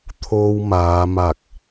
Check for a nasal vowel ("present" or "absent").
absent